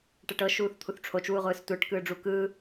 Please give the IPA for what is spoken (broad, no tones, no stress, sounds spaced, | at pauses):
ʈ ɛ ʈ ɤ ʃ uː θ t̪ʰ u θ ʈ͡ʂʰ o t͡ʃ w u ʁʷ ɯː s tʷ ɛ ʈ k ɯː ɖ͡ʐ u k ɯː